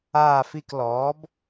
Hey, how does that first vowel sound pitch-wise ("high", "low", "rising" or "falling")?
falling